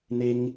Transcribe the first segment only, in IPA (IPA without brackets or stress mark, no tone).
n̪